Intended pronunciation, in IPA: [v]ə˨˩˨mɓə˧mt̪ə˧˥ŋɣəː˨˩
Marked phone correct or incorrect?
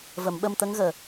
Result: correct